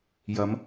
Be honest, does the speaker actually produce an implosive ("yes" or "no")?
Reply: no